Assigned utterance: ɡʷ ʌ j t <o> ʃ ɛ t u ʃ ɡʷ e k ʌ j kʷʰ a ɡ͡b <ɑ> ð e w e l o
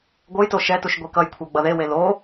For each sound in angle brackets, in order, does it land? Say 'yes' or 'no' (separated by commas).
yes, no